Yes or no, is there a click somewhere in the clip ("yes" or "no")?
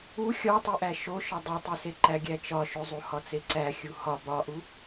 yes